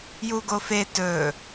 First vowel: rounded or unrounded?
rounded